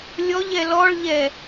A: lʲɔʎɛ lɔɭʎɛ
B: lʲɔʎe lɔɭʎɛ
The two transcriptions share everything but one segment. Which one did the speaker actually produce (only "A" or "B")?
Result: A